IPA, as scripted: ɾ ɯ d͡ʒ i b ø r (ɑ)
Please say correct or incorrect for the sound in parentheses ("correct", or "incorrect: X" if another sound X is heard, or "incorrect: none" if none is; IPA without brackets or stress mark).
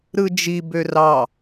correct